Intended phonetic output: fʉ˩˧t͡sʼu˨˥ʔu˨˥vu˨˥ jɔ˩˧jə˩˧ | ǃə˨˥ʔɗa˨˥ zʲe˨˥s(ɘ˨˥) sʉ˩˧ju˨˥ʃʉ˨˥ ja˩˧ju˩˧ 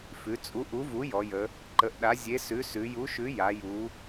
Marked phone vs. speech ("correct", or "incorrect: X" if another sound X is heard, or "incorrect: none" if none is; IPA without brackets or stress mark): incorrect: ʉ˨˥